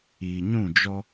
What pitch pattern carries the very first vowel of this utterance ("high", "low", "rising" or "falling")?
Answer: low